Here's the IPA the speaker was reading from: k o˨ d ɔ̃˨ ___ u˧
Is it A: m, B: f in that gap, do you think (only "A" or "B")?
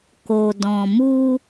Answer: A